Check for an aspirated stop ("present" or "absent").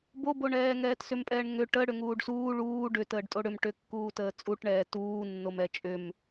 absent